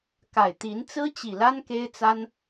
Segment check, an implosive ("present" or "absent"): absent